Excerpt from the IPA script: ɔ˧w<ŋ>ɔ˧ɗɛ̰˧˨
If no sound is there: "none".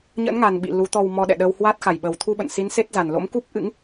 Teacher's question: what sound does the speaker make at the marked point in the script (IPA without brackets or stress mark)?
m